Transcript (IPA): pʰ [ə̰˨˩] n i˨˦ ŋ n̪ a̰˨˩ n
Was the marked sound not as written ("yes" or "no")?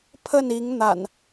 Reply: yes